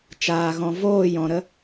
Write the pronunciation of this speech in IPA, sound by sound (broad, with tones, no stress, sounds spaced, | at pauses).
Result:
t͡ʃ aː˨ ɣ ɔ̃˨ v oː˦˨ j ɔ̃˨ ɾ ə˦